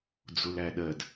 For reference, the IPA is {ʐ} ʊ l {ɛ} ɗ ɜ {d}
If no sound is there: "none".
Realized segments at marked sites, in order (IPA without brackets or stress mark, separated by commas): d͡z, æ, d